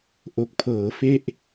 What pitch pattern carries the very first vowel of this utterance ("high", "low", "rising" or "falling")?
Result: low